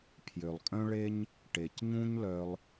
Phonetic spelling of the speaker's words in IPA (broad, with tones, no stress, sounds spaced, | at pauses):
pʰ j ø˨ lˠ kʼ œ̃˦ ɭ e˦ ɲ | ʈ e˨ c ɲ ũ˦ ɲ l œ˧ lˠ